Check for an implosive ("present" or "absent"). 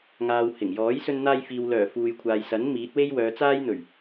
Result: absent